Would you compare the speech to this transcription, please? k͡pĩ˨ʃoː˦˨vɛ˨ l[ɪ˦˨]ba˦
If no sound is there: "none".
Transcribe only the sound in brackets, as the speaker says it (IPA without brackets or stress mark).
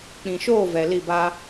i˦˨